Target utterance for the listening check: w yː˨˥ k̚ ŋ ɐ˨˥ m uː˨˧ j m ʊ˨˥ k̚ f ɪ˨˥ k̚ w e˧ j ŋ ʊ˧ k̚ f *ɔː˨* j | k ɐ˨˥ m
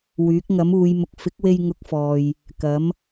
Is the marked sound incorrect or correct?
correct